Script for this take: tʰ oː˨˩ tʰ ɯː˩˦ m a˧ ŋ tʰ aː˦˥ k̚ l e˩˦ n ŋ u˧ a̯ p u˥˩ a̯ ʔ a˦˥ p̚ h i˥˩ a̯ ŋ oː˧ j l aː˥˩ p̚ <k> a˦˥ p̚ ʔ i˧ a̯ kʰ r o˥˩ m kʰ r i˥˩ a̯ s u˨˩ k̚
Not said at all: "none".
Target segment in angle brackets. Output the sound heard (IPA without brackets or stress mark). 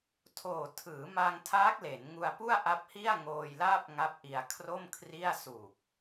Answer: ŋ